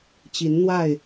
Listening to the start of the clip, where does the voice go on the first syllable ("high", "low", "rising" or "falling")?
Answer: rising